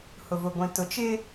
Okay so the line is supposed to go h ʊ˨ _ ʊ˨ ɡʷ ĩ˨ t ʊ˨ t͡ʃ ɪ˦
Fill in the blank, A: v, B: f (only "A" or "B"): A